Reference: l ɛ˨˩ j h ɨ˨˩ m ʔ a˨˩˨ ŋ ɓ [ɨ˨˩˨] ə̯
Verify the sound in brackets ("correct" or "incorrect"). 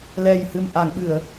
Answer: correct